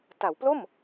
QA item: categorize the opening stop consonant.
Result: plain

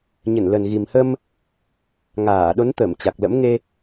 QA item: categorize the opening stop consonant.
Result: implosive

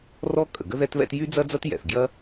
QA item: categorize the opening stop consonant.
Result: ejective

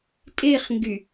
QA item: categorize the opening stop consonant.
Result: ejective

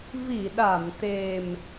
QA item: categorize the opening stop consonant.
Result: implosive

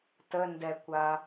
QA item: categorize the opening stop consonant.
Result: plain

